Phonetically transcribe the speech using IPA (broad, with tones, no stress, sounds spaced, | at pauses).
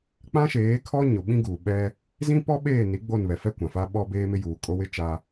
k͡p ã˦ ʃ eː˨˦ kʰ ɔ˦ ɲ ʊ˨ ɓ ĩ˦ ɡ uː˨ ɓ ɛ˦ | z ĩ˦ p ɔ˦ ɓ eː˦˨ n i˨˦ ɡ͡b o˦˨ n β ɛ˨ f ɛ˦ kʷ ã˨ f a˦ ɓ ɔ˦ b eː˦ m ɪ˦ j uː˨ kʼ o˦ w ɪ˦ t͡ʃ a˦